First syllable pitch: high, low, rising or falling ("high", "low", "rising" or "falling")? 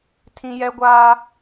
high